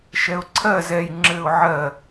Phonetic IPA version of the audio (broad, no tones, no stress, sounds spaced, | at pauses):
ʃ ɛ ʊ̯ ǀʰ ɜ z ɛ j ŋ͡ǁ ɘ ʊ̯ ʕ ɜ